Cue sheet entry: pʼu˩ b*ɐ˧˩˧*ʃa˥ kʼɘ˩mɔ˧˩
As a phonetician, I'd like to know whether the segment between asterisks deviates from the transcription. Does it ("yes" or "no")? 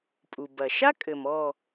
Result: yes